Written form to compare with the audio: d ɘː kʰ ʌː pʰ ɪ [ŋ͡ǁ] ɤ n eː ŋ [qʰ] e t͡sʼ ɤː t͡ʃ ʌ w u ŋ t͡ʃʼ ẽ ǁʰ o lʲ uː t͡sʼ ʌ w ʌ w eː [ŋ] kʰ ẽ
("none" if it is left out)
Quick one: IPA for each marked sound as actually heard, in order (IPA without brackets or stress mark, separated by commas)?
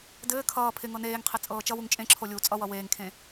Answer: ŋ, qʰ, ŋ